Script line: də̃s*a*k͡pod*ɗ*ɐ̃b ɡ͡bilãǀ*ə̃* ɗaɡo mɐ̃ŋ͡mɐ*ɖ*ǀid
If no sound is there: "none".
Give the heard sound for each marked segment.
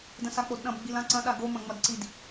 a, ɗ, ɐ̃, d

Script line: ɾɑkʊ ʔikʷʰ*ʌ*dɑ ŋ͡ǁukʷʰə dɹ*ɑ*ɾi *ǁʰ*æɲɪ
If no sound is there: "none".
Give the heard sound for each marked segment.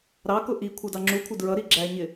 ʌ, ʌ, ɡ͡ǁ

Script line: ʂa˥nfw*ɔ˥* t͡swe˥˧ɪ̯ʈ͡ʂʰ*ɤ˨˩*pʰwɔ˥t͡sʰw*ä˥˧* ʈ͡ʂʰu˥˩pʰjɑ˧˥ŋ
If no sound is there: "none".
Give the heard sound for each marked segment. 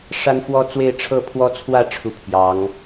ɔ˥, ɤ˥˩, ä˥˧

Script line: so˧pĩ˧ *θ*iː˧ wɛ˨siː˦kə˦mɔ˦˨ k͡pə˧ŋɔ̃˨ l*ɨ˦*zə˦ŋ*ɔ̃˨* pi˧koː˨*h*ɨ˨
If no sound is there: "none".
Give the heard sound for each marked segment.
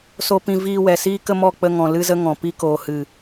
v, ɨ˦, ɔ̃˨, h

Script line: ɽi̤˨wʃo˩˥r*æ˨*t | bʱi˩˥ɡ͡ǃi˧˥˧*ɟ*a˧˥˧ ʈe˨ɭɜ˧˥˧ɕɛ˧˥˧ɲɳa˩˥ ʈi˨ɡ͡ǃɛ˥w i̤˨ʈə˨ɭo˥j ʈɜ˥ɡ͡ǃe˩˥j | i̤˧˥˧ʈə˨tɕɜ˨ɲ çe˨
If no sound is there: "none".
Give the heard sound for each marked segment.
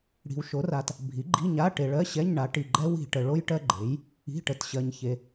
a˨, ɲ

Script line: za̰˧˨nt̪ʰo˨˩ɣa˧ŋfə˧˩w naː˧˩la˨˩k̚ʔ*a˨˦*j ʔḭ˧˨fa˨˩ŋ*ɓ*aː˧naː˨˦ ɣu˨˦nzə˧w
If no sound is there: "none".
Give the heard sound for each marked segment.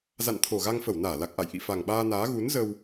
a̰˧˨, ɓ

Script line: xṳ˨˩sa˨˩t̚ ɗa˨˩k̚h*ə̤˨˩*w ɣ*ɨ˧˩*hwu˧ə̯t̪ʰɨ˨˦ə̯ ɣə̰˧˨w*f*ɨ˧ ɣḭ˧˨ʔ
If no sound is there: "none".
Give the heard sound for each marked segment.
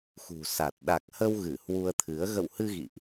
ə˧, ɨ˧˩, h

